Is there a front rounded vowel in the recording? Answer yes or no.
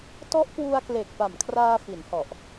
no